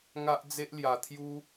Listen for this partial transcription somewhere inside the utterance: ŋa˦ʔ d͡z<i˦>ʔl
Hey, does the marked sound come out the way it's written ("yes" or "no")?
no